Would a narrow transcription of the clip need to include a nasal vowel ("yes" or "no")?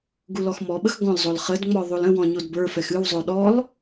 yes